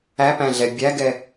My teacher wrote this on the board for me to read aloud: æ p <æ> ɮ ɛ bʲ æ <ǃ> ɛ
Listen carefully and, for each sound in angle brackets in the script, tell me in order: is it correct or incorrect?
incorrect: æ̃, incorrect: ɡ

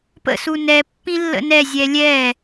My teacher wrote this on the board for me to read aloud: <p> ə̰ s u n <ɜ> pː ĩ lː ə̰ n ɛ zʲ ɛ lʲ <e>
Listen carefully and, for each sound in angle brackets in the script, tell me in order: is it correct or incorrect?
correct, incorrect: ɛ, incorrect: ɛ

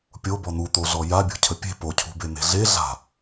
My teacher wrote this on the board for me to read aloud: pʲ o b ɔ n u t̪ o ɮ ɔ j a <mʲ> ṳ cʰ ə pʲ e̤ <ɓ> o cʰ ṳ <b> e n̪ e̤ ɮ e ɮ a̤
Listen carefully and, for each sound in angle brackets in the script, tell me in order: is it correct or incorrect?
incorrect: bʲ, incorrect: p, correct

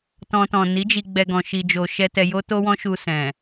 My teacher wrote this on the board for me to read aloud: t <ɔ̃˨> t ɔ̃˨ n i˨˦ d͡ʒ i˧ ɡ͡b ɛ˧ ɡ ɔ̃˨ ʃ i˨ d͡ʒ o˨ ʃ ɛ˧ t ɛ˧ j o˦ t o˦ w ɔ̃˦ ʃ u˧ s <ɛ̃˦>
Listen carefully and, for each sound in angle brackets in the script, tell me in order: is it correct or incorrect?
incorrect: ɔ̃˧, incorrect: ɛ̃˨

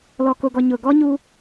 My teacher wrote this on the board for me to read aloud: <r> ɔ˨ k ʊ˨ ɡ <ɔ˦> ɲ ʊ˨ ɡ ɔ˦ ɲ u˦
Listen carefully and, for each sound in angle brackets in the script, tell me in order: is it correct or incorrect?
incorrect: l, incorrect: ɔ˨

